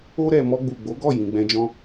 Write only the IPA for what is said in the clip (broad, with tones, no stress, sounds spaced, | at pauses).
o˧ ɾ ɛ˨ m ɔ˧ ɡ͡b u˨ ɡ͡b o˨˦ ɡ ɔ˦˨ j ĩ˨ ɡ͡b ɛ̃˧ d͡ʒ ɔ̃˦